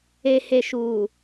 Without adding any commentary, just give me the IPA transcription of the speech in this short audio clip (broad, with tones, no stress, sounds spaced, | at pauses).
e˨ h e˨ ʃ uː˨